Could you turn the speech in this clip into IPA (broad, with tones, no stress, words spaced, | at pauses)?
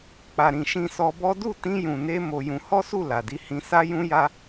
k͡pa˨ɾĩ˨ ʃĩ˧sɔ˧bɔ˦ du˦˨tĩ˧jũ˨ne˧ mo˧jũ˧ hɔ˦su˦˨ la˨di˨˦ hĩ˧ sa˦jũ˦ja˦